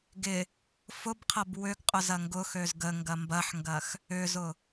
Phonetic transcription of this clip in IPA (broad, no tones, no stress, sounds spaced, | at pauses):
ɡ ɪ | f ʊ b qʰ ɐ b w ʏ ɡ qʼ ʊ z ɐ ŋ ɡ ʊ x ø z ɡ ə ŋ ɡ ɐ m b ɐ ħ ŋ ɡ ɐ x | ʏ z ʊ